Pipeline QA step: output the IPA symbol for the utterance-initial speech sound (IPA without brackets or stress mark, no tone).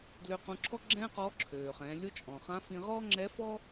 d